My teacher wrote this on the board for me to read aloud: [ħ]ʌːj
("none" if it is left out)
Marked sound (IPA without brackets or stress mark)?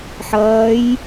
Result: ħ